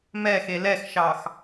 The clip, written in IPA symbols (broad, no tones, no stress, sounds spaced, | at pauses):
m ɛ x e l ɛ x ʃ ɑ x